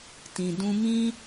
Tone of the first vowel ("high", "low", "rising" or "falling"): low